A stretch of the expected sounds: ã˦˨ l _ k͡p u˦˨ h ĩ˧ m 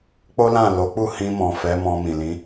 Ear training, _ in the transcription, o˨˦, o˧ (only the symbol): o˨˦